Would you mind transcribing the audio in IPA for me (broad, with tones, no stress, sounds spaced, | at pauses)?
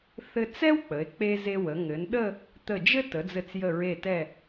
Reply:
θ ɘ˧ t͡s ɛ˥ w k͡p ə˩˧ e̯ k͡p e˧ z e˧ w ə˩˧ ŋ ɘ˩˧ n ɗ ə˥˧ | t̪ ə˧˩ d͡ʒ ɘ˥ t ə˩˧ d͡z ɘ˧˩ t͡s j ə˧˩ ɹ e˧˩ t ɛ˧˩